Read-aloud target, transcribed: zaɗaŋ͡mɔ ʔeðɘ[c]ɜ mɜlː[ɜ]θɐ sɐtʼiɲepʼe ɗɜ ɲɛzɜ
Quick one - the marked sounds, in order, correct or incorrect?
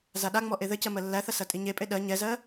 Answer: correct, incorrect: æ

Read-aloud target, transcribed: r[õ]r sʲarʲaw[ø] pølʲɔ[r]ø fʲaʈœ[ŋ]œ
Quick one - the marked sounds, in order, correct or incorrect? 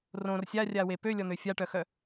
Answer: correct, incorrect: e, incorrect: n̪, incorrect: x

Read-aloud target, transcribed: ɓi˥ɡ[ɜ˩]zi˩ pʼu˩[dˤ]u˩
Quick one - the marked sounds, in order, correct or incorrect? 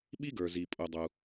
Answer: incorrect: ə˞˩, correct

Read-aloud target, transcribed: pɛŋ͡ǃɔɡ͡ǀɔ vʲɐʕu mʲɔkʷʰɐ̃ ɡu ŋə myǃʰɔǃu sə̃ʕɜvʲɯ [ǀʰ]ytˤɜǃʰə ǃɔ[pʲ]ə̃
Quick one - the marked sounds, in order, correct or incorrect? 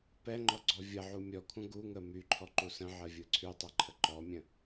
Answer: correct, incorrect: mʲ

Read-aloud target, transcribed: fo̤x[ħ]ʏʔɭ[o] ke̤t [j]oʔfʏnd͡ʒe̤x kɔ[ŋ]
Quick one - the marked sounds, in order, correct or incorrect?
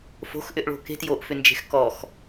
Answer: incorrect: ʔ, incorrect: o̤, correct, incorrect: x

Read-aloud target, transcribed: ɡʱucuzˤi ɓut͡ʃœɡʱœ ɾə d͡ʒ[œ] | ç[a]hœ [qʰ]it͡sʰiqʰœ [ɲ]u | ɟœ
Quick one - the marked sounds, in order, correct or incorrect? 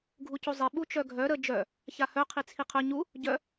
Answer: correct, correct, correct, correct

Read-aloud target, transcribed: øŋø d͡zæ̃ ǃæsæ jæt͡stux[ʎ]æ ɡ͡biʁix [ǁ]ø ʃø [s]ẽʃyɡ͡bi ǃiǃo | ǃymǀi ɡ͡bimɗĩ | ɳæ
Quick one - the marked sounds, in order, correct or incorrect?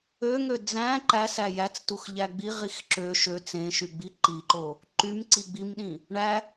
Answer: correct, correct, incorrect: t͡s

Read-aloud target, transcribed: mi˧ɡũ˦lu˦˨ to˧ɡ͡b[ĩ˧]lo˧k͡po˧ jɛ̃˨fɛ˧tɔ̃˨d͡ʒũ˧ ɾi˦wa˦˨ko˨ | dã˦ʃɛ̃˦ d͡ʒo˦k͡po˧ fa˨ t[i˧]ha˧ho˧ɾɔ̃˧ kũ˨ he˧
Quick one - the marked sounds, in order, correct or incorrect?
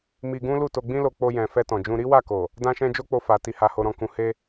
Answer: incorrect: ĩ˦, correct

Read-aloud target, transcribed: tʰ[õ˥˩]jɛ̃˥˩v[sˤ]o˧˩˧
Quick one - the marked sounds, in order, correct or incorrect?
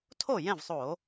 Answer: incorrect: o˥˩, correct

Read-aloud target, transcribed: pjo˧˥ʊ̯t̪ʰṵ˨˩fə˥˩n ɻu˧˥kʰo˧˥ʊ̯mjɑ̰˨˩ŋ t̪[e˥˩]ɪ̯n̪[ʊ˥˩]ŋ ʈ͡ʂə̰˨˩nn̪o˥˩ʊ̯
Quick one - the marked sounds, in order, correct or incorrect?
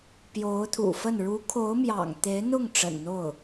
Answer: incorrect: e˧˥, correct

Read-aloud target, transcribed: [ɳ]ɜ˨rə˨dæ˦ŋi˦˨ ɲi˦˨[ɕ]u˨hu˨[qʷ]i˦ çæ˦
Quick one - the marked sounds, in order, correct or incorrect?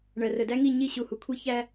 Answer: correct, correct, incorrect: kʷʰ

